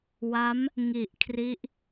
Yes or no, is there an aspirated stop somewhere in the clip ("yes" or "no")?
yes